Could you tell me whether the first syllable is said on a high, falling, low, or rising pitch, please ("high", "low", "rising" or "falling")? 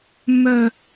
falling